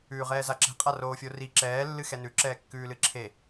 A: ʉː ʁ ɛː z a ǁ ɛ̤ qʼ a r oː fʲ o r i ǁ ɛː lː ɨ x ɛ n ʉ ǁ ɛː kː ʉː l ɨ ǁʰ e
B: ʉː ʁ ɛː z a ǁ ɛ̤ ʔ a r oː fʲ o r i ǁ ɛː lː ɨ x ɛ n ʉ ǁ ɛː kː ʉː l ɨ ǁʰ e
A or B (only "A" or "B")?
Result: A